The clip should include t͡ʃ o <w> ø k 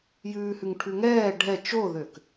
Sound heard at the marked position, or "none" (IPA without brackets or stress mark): ð